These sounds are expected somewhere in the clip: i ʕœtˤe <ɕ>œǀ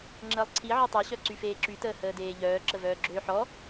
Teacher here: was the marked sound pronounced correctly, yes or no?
yes